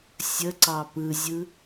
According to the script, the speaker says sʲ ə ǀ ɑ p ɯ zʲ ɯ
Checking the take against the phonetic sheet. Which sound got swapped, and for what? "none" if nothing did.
none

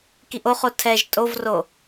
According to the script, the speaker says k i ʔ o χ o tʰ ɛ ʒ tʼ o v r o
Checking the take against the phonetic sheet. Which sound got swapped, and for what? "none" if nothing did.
none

